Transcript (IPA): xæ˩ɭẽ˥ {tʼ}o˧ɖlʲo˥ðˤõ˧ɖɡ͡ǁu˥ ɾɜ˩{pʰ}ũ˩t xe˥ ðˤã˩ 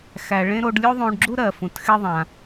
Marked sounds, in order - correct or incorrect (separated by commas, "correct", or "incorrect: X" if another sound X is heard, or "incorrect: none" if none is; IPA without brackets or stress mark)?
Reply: incorrect: ɾ, incorrect: f